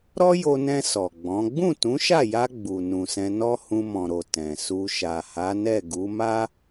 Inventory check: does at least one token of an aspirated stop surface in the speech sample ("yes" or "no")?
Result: no